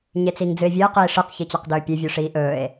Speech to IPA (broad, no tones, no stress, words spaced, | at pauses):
ɲet͡siŋd͡zɨe̯vʲɨe̯ qiːʂɨq çit͡ɕaqdɵːpʲe vʲʉʂiːʔɵːe̯